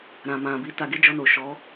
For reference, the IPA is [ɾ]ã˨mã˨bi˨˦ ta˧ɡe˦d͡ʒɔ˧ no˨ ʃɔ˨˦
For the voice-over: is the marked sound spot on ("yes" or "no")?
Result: yes